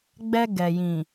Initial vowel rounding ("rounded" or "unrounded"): unrounded